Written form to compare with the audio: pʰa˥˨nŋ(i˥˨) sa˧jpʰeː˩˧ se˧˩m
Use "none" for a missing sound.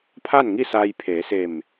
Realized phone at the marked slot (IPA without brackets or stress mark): i˥˨